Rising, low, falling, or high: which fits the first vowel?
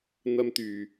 high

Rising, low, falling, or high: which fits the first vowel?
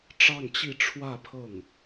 falling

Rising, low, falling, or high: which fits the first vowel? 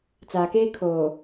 low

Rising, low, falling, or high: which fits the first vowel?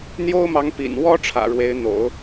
high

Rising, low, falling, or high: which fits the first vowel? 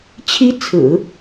high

